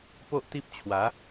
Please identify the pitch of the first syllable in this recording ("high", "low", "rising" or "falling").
high